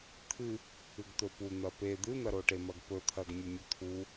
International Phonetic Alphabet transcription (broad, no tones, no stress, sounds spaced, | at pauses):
t̪ʰ ɨ | ɨ ɡ t̪ ɵ p u n̪ ɐ p e d̪ ɨ n̪ ɐ ɾ o ʈ e m ɐ ɡ p ɵ t̪ʰ ɐ ɡ mʲ ɵ mʲ ɵ t̪ʰ u